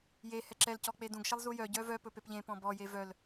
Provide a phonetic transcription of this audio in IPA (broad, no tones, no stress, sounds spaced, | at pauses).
j e h ɛ ǁ ɛ l c ɔ k͡p e d ũ ɡ ʃ ɛ lˠ z u j œ ɟ œ v œ p ɵ p e p ʎ ẽ p ɔ̃ b ɔ j e v œ l